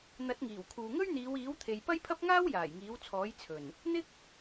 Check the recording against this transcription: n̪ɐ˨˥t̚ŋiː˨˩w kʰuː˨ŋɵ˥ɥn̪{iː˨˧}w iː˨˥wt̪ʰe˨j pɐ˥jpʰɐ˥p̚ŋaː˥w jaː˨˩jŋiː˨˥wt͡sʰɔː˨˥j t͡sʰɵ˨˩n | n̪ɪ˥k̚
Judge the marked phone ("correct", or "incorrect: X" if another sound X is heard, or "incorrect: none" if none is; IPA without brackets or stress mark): correct